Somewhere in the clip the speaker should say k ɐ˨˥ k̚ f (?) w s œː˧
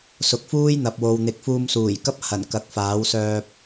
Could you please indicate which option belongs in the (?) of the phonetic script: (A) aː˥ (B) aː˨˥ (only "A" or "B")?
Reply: B